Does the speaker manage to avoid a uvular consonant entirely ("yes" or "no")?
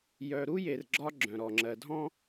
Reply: yes